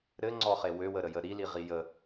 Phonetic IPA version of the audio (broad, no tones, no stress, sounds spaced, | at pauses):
ɾ ɘ ŋ͡ǀ ɔ χ e w ø w ə ɾ ə j ə ɾ i l i ʁ i j ə